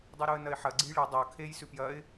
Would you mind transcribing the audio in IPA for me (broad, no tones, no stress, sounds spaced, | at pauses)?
dˤ u ɾ u ə̯ n ɐ ɪ̯ ħ ɐ ɡ͡ǀ ɨ j ɭ ɨ dˤ ɐ ʊ̯ kʰ e j s ʉ p j ɐ ɪ̯